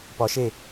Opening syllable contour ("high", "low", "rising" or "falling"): rising